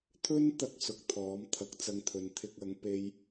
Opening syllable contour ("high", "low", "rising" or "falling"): high